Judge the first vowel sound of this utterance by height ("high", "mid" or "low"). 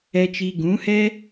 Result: mid